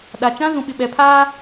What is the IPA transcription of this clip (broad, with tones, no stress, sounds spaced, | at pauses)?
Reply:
ɗ a˨ t͡ʃ ã˦ z ũ˨ ɓ ɪ˨ ɓ ɛ˨ pʰ aː˦